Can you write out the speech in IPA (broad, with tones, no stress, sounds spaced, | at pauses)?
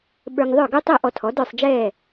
ɓ ə˞˧ ŋ ðˤ ə˞˥˩ ɡ u˥ tˤ ɛ˥˩ ʔ ɔ˧ tʰ ɔ˩˥ d ə˞˥˩ sˤ d͡ʒ ɛː˥˩